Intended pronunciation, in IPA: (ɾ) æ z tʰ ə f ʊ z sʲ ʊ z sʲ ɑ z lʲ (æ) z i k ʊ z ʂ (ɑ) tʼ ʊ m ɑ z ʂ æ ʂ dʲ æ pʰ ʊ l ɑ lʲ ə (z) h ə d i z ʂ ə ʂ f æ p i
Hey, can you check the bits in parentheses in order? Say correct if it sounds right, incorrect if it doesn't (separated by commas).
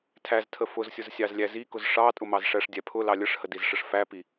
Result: incorrect, correct, correct, incorrect